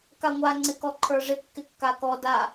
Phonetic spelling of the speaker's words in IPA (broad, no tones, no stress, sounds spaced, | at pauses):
k a ŋʷ a ŋ͡ǀ ɪ k ɔ ǃʰ ə˞ ʐ ɪ kː ɪ kː a k ɔ d a